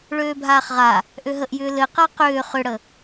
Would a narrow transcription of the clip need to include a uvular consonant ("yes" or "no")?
yes